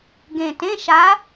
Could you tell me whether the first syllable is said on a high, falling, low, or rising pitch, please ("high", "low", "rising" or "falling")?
low